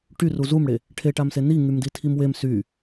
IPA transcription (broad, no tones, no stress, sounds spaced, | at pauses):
ʈ y r u z u m ɽ e | ʈʰ e ʈ a m s e n i ŋ y m d i tʰ i m w e m s y